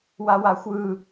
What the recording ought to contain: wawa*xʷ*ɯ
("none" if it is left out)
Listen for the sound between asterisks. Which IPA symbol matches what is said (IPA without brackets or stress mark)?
xʷ